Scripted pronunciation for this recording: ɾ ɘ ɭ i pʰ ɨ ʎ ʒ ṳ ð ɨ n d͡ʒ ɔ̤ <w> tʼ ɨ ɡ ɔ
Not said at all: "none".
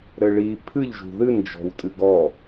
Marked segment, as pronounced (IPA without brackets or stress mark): w